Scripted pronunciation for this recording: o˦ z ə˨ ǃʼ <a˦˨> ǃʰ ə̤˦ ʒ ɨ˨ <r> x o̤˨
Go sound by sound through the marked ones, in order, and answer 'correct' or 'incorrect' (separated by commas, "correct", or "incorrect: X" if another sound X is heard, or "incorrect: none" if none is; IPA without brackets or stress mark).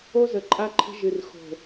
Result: incorrect: a˦, correct